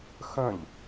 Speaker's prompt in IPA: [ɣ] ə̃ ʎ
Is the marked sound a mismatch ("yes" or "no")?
yes